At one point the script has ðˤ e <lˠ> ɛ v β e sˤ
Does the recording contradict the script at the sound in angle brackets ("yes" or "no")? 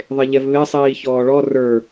yes